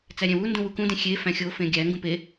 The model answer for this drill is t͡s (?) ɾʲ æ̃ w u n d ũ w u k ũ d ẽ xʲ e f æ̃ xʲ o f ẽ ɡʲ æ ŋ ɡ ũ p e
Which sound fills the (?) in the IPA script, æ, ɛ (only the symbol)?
æ